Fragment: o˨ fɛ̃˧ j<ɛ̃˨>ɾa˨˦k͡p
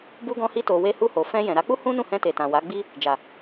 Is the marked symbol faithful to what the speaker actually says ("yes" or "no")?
yes